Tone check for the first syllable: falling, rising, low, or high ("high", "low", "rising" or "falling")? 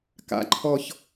low